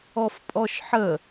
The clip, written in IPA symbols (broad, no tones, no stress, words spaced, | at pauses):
ɔfpʼɔʃħə